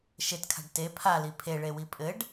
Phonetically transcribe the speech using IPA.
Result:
ʃ e t kʰ a̤ ɖ t e pʰ a l i pʰ e ɭ e w i pʼ ɘ ɖ

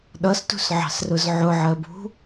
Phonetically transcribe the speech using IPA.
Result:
ɗ ʌ s t ṳ s ʕ ɑ̤ s r ʊ z ʕ ʊ ʕ ɜ b ṳ

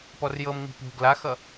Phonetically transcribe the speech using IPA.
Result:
p ɔ r j ɤ m ŋ͡m i̤ p ṳ ɡ l a x ʌ

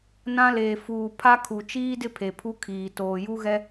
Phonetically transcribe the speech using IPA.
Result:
n ã˦ l eː˨ f uː˨ pʰ a˦ kʰ u˨ t͡ʃ iː˦ d ɪ˦ pʰ e˨ pʰ u˦ kʰ iː˨ t oː˨ j u˦ ɣ ɛ˦

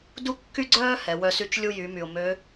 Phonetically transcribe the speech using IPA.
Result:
d u˥ kː y˥ ɡ͡ǀ œː˥ h ɛ˩˧ w œ˧ s y˧˥ t͡ʃ lʲ u˧ j y˩˧ m y˩ ʊ̯ m ø˧˥

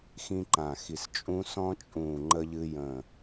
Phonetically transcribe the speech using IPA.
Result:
x ĩ˦ ǃ ã˧˩ x i˧˩ s t͡ʃʼ ũ˦ s ɔ̃˦ t͡ʃʼ ũː˧˩ ŋ͡ǃ ə˦ ʎ ɨ˦ j ə̃˧˩

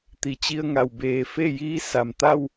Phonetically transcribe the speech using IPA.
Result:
t̪ i˩˧ t͡ɕ i˧ ə̯ ŋ a˩ w b eː˧˩ f e˥˨ j iː˧˥ s a˩ m t̪ a˥˨ w

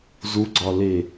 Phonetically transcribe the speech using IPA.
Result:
z u ɡ͡ǀ ɒ l e

